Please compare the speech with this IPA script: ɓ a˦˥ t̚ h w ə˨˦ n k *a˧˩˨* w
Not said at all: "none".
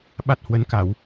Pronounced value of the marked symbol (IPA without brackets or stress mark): a˧˩˨